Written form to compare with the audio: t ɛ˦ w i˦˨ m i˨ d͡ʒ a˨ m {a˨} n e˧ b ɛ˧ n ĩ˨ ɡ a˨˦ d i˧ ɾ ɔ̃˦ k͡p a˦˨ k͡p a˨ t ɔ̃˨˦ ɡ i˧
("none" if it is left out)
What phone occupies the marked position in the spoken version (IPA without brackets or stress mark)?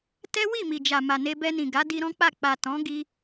a˨